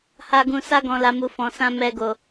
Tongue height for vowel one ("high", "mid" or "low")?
low